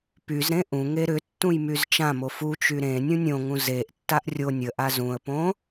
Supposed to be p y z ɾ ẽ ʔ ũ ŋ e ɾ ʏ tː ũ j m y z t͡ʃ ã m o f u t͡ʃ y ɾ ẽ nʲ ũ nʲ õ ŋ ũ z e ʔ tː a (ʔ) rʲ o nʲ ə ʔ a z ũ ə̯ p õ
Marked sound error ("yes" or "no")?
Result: no